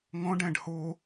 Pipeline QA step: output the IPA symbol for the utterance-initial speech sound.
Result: ŋ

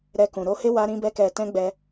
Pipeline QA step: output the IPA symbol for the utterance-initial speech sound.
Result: ɾ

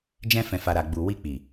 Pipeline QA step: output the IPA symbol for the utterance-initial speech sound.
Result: d͡ʒ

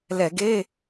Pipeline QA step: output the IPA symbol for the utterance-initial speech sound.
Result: l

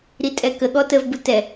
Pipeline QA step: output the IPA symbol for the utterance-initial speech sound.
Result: ɾ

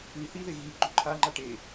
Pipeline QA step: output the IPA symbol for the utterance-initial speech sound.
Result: ʉ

